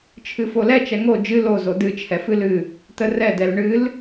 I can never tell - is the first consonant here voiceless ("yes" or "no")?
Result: yes